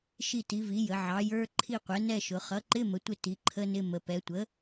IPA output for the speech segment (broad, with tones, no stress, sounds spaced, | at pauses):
ʃ i˦˨ t i˩˥ v i˩˥ j ə˩˧ ʕ ɑ˩˥ j ə˞˧˥˧ ǃʰ i˦˨ qʷ ɛ˩˥ n ɛ˦˨ ʃ ʊ˩˧ χ ʌ˩˥ ǃ ɪ˧˥˧ m ə˩˥ tʷ ɪ˦˨ t i˩˥ ǃʰ ə˧˥˧ n ɪ˧˥˧ m ə˩˧ p ɛ˩˧ tʷ ə˩˥